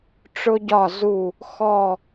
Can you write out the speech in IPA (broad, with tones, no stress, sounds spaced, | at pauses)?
ʈ͡ʂ ʊ˥ ɟ ɒ˥˧ z u˥˧ | x ɔ˥˧